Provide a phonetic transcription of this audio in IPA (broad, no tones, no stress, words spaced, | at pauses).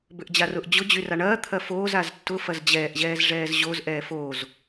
bʏʔd͡ʑarʊʔ d͡ʑʊ d͡ʑyraɳɐː t̪ʰɐfoːz aztːʊ fɐzd͡ʑɛːʔ ʑɛːzʐɛːzʑoz ʔɛːfoːz